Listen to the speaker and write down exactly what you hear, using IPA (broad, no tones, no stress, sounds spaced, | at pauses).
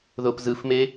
ð o p z ɯ f m e